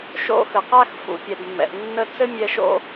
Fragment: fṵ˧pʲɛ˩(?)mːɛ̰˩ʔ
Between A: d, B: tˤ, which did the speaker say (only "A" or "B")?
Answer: A